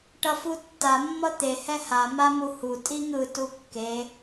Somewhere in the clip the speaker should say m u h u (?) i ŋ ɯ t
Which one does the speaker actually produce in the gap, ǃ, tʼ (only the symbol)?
tʼ